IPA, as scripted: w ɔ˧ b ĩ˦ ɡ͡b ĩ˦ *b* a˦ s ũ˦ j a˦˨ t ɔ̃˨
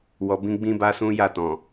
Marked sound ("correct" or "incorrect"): correct